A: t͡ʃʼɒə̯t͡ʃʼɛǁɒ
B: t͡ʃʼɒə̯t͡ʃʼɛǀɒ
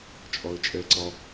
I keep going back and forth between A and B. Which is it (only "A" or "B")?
B